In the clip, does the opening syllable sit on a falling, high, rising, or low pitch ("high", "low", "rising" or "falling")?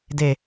low